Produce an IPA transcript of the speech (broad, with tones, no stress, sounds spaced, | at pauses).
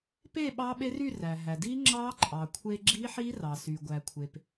p e˥˧ ɓ ɑ˦˥ ɓ e˦˥ r y˥˧ r æ˩ ɦ æ˩ d i˦˥ ŋ͡ǁ ɑ˦˥ ǃʼ ɑ˩ kʷʰ e˧ ɡ͡ǁ i˦˥ ħ i˦˥ r ɑ˩ s y˩ ɡʷ æ˩ kʷʰ e˩ p